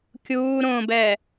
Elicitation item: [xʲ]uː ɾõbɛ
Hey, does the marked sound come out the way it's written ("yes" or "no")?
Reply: no